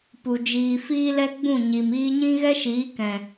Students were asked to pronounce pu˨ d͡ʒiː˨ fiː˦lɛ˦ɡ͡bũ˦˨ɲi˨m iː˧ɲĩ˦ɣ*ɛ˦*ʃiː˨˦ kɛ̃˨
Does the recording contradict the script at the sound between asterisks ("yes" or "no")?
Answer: no